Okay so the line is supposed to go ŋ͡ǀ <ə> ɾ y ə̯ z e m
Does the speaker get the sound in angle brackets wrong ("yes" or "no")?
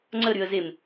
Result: no